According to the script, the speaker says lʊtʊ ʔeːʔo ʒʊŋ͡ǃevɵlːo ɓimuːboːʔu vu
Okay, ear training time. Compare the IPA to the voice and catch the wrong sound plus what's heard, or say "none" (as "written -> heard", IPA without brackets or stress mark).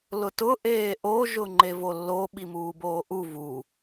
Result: ɵ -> o